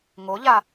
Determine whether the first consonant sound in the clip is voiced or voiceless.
voiced